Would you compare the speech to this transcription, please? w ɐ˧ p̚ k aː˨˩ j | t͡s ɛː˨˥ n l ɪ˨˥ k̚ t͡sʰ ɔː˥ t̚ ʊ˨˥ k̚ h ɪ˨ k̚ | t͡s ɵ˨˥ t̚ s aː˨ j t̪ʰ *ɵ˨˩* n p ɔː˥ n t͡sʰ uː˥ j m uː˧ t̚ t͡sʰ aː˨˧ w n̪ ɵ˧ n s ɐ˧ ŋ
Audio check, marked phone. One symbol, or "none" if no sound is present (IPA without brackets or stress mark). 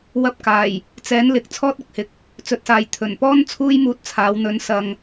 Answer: ɵ˨˩